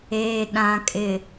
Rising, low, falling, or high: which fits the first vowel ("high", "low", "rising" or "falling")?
low